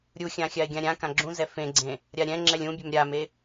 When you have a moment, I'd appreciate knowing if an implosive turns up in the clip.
no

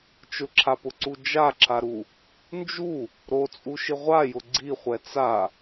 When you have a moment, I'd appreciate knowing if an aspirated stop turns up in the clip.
yes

